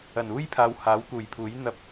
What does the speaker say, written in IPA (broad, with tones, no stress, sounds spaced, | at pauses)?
ɐ˨˩ n uː˥ j pʰ aː˨˧ w h aː˨˥ w k uː˨˩ j pʰ uː˨˥ j n̪ ɐ˧ p̚